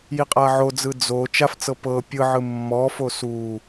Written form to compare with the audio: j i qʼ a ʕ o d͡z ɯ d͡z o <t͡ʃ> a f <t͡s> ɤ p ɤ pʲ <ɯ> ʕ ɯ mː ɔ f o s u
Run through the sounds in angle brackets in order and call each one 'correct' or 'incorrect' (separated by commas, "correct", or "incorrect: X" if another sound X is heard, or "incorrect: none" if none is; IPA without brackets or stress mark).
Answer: correct, correct, correct